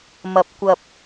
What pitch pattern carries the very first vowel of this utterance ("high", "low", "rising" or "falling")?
low